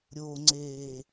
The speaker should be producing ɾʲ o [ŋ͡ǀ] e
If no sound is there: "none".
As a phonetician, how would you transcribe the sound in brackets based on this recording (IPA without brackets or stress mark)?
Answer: ŋ͡ǀ